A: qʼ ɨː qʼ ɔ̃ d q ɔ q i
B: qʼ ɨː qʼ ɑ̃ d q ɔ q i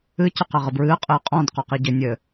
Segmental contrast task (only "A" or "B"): A